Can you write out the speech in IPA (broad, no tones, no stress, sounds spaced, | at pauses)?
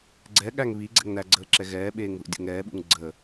ɡ͡ǀ ɛ ɠ æ ŋ β i ɡ͡ǀ ɛ̰ ŋ n æ ɡ͡ǀ əː ǁ ɛ ɣ ɛː ɓ eː ŋ ð ṵ dʲ o̰ ŋ ɛː ɓ ṵ ŋ ɡ͡ǀ ə